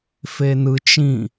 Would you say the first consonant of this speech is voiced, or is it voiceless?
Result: voiceless